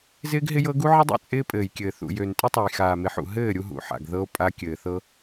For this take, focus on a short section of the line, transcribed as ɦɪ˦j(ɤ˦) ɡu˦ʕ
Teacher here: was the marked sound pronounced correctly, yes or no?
yes